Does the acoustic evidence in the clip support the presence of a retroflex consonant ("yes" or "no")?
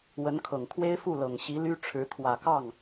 yes